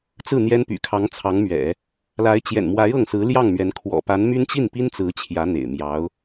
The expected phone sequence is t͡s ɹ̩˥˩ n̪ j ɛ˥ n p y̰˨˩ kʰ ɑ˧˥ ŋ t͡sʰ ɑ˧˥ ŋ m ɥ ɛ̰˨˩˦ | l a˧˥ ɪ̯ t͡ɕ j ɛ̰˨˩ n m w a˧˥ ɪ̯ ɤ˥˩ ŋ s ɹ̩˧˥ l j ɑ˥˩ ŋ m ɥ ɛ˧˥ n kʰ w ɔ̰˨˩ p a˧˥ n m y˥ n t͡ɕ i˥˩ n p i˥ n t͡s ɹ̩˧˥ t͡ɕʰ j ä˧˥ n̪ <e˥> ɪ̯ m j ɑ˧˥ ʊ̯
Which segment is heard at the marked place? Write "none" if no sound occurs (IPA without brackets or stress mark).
ḛ˨˩